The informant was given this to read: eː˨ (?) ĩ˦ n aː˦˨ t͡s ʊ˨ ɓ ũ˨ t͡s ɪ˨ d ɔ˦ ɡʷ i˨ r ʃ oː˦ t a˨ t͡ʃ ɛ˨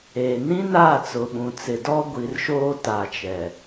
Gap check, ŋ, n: n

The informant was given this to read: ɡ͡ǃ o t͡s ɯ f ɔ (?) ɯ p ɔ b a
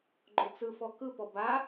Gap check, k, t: k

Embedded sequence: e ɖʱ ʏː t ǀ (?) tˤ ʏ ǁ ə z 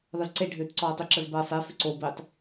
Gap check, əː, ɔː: ɔː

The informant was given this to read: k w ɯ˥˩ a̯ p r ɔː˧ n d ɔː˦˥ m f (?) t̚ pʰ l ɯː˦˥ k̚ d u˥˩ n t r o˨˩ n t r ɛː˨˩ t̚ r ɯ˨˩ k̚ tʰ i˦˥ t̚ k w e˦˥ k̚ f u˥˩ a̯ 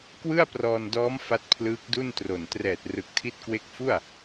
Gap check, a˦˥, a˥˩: a˦˥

